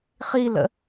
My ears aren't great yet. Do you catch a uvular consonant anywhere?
yes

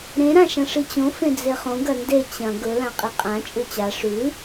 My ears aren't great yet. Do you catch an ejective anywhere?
yes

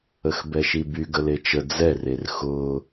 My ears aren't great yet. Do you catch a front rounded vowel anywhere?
yes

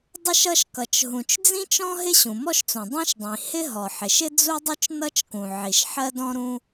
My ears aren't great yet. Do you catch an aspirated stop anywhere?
no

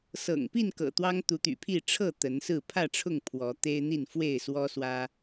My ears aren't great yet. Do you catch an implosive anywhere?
no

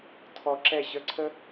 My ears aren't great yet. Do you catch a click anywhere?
yes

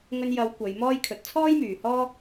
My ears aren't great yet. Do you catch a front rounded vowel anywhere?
yes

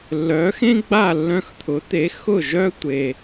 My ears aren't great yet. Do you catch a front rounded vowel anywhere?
yes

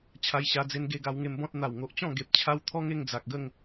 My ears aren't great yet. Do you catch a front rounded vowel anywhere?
no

